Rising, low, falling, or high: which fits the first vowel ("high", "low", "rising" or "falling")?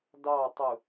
falling